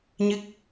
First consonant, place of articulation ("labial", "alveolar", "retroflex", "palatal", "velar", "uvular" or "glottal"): palatal